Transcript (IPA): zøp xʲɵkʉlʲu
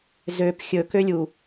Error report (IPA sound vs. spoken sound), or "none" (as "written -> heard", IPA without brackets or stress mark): ʉ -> ø